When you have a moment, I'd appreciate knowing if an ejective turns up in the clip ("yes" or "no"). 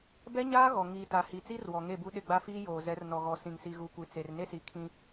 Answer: no